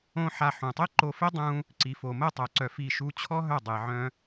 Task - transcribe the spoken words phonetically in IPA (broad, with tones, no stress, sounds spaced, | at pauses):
õ˦ ħ a˧ ħ ũ˨ tˤ e˦ ǃ o˧ f e˦ dˤ ũ˦ | ǀ i˨ f o˨ m ə˦˨ tˤ œ˨ ǀ œ˧ f i˦˨ ʃ u˦ t͡ɕʰ ɔ˦ ɦ œ˦˨ dˤ e˨ ʕ œ̃˦